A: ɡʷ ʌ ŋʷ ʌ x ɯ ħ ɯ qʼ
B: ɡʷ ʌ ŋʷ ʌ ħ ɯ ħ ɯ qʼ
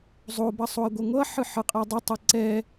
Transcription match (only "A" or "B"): B